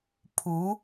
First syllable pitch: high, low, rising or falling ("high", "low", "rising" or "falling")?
rising